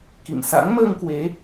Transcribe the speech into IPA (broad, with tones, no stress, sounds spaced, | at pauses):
k ḭ˧˨ m s a̰˧˥ ŋ m əː˧ ŋ k w e˨˦